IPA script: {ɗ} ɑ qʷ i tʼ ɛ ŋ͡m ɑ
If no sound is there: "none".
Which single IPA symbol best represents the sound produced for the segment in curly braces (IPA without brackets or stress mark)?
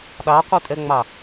ɗ